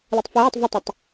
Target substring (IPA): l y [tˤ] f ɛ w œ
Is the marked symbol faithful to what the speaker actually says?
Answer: yes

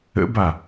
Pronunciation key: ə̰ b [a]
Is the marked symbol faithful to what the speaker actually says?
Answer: yes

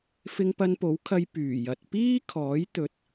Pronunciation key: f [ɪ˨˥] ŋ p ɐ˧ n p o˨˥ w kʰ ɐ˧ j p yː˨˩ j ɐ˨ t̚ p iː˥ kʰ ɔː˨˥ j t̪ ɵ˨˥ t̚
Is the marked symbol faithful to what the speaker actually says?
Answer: no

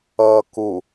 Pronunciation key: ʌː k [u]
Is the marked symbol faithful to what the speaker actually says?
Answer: yes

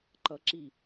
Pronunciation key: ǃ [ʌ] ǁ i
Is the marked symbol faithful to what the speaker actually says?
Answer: yes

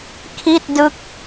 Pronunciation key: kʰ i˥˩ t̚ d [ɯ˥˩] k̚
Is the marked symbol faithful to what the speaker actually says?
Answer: no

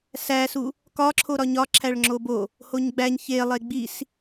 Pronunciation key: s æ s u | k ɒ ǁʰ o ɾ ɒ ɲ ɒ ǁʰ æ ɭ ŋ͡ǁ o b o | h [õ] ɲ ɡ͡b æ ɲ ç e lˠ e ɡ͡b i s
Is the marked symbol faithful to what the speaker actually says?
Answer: no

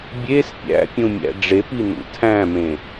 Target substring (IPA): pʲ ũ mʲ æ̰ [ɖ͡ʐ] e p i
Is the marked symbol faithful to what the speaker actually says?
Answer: yes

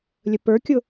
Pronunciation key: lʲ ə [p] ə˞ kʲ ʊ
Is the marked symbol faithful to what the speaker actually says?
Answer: yes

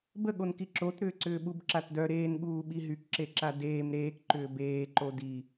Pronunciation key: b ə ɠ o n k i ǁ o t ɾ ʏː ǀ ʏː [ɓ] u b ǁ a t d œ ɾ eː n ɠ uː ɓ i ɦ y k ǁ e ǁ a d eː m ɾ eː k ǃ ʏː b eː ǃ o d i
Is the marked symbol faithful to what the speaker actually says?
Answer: yes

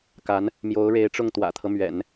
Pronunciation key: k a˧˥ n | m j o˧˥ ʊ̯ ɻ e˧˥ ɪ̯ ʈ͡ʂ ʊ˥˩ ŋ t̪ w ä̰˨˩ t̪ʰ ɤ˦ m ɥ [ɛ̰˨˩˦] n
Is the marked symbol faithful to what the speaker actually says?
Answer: yes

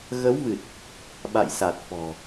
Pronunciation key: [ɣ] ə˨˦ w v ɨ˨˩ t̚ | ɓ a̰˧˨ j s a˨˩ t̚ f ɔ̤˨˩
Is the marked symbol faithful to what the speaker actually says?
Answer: yes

